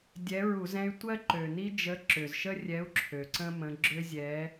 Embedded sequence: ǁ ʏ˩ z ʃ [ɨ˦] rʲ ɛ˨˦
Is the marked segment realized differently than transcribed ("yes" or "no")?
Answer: yes